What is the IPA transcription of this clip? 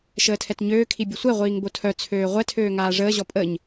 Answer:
ʃəːtʰɛtɲøːkʰi bʲəsʷɛʁʷiːŋ botʰœt͡sʰøː ʁʷɛtʰøː ŋaːʐəːʑɔ pʼəɲ

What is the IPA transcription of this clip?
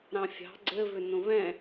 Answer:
ɾɑ̃fʲɑ̤ ɡ͡ǀɘvʏ nõvɛ̃

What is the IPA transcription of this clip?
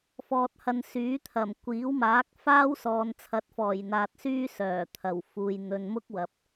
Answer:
fɔː˨t̚hɐ˨n syː˨˥t̪ʰɐ˨˩m kʷiː˨˥wmaː˨˥k̚ faː˥w sɔː˨nt͡sʰɐ˨˥t̚fɔː˨˩j n̪aː˨t̚ syː˥sœː˨˩ t̪ʰɐ˨˩wfuː˨j n̪ɵ˨nmʊ˥k̚ wɐ˨p̚

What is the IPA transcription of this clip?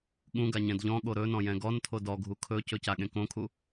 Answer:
ɠũɡa ɲɛ̃dʎɔ̃ɠo ɾɵnɔ̃ jɛ̃ɡɔntʰo dɔɡʱu kʰɵcɵ caɠẽkõkʰu

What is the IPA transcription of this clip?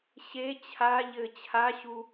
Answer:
ɕe t͡ɕʰa ʎɘ t͡ɕʰaɕu

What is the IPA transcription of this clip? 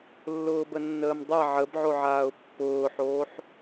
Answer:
lːʊːbənːəːmdˤa ʕəbʕoʕaːʊ̯ pːʊːħoːħ

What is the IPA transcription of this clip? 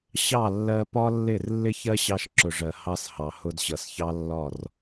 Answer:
ɕɑ˦˨ lːɜ˧pɒ˦lːɪ˦˨r lːɪ˦çɜ˦ ɕɑ˧ʃǁʊ˨ʐɜ˨ hɑ˧s hɑ˨hʊ˧dɕʌ˨sçɑ˦ lːɒ˦˨r

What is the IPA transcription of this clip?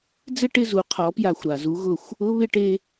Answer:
d͡zɪ˥˨ʈɪ˥˨ zu˩˥qʰɔ˩˥pja˧˩xʷ ɾa˩zu˩˥ɣʊ˧˩xʷ | ʊ˧˥˧βɪ˥˨ʈe˧

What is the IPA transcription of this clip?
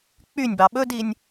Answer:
k͡pynʲbɑ ɓɵdinʲ

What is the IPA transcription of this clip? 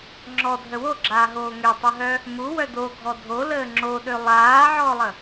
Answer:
ŋ͡ǁɔdʱə woɡ͡ǁaːɦoː ŋøtˤəɦœ | muwœ doɡʱɔ dʱoləː ŋ͡ǁoɗø lˠaːʕɔːlˠə

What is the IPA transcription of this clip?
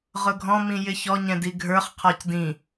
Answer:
ʁʊɡʱɔ̃mĩ jɪçɔɲɛ̃ diɡʱə˞χqʰɔc dĩ

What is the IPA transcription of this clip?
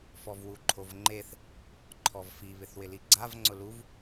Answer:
fɔvwuǃʰovŋ͡ǃeθ | ǃʰɔvfi βɪθwɪliɡ͡ǀav ŋ͡ǀʊluv

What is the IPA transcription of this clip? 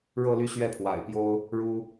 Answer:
ɻɤ˥˧ly˥˧ ɕɥɛ˥˩pʰwa̰˨˩ɪ̯pjo˥ʊ̯ | ɻu˥

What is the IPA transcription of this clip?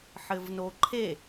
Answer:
ħɘvnoǃʰe

